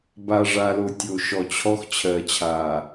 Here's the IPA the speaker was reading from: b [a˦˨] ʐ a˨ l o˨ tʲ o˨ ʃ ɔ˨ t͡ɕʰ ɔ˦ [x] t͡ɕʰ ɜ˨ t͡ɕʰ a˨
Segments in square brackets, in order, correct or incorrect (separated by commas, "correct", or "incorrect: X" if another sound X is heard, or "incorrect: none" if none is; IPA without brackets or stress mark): incorrect: a˨, correct